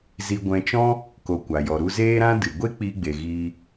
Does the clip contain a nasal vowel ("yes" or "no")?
yes